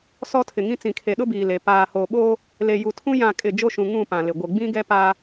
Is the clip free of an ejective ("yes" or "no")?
no